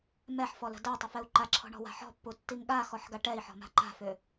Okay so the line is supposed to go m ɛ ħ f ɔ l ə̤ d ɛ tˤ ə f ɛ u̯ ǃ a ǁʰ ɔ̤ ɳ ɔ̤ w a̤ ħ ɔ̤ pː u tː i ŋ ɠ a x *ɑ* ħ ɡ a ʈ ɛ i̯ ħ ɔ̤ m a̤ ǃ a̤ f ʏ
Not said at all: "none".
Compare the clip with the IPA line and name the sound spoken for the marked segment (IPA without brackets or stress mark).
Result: ɔ